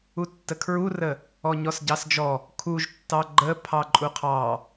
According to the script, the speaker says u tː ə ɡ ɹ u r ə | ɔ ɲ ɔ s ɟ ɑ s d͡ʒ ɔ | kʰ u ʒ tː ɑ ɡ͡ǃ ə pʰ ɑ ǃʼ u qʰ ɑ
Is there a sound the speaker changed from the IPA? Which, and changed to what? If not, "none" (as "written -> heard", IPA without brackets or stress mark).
ɡ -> kʰ